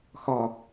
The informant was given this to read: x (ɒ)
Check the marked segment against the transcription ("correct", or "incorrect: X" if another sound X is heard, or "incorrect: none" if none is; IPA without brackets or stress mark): correct